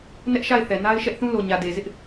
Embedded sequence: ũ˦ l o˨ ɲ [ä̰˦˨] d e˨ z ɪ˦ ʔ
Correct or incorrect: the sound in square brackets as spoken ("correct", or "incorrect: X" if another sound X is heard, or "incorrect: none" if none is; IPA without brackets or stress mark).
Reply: incorrect: ä˨